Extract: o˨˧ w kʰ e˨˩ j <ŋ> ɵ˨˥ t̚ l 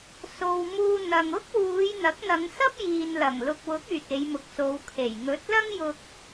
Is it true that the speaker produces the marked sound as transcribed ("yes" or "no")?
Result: yes